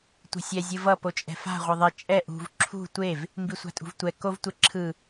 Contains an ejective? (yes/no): yes